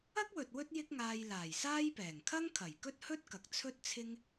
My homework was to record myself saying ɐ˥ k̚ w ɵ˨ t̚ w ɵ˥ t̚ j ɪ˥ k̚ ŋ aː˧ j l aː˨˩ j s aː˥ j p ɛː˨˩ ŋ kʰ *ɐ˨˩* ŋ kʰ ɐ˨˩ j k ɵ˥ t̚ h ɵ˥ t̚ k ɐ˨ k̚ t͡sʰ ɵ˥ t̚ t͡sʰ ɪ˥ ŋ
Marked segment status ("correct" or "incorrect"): incorrect